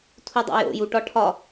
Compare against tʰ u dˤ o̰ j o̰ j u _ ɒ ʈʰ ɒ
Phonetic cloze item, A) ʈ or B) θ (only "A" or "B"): A